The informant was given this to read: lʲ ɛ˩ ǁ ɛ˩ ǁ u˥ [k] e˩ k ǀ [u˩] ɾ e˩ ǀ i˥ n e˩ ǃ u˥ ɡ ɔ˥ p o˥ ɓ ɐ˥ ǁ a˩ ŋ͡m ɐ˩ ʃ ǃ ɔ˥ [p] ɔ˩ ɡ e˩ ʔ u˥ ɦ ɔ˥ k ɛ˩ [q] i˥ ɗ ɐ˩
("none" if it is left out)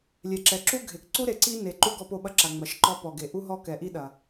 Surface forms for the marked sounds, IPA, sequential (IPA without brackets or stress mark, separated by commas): ɡʱ, u˥, p, ʔ